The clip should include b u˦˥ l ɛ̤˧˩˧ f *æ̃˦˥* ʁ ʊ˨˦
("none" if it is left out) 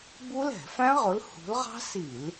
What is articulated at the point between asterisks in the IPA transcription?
æ̃˦˥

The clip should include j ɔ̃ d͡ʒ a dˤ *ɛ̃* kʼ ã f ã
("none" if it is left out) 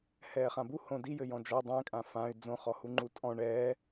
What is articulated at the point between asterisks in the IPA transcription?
ɛ̃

